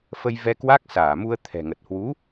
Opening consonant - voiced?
no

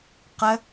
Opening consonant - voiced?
no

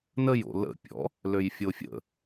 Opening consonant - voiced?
yes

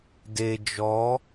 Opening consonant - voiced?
yes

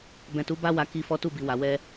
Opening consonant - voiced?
yes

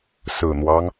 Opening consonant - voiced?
no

